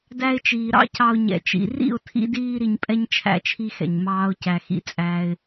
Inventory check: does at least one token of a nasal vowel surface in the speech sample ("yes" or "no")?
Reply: no